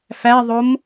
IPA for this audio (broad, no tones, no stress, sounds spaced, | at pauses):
f æ ðˤ o m